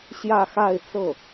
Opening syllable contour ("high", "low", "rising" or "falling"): falling